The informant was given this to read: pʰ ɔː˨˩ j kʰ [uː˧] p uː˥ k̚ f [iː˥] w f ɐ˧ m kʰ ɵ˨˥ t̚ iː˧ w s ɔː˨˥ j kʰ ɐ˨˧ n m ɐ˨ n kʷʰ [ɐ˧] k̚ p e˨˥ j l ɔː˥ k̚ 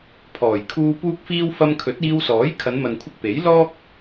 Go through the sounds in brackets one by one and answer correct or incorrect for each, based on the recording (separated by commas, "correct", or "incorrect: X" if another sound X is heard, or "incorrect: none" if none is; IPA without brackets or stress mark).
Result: correct, correct, correct